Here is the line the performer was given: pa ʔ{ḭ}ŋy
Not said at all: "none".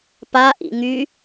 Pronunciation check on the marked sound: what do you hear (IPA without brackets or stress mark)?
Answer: ḭ